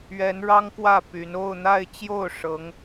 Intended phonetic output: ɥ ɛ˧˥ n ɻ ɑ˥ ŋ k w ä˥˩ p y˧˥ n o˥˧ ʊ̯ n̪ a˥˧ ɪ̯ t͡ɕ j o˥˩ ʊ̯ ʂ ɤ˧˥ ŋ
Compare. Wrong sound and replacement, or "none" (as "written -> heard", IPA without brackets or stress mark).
none